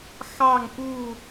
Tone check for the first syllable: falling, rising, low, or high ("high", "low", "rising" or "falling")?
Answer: falling